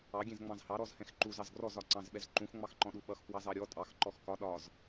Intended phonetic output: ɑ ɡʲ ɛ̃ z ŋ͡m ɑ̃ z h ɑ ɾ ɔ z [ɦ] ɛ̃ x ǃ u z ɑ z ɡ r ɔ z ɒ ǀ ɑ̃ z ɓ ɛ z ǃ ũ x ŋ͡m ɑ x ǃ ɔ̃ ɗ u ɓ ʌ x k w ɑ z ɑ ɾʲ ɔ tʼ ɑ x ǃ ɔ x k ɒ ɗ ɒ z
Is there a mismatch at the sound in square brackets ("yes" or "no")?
yes